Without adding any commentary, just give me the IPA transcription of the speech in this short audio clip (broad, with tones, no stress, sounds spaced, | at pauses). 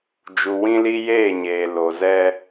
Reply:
d͡ʒ u˨ w ĩ˦ l i˦ j eː˦˨ ɲ eː˨ l o˨ z ɛ˦